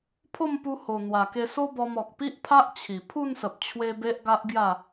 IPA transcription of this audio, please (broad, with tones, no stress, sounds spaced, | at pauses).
pʰ o˥˧ m p u˧ h o˨˩ n̪ w a˨˩ k e˧ s o˦ b ɔ˧ m ɔ˨ k̚ p i˦ ʔ pʰ a˦ ʔ t͡ɕʰ i˨˩ pʰ u˥˧ n s ə˨ p̚ t͡ɕʰ w e˧ b e˦ ʔ ɡ a˦ ʔ ɡ j a˥˧